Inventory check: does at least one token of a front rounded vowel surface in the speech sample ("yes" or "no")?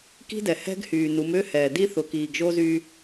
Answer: yes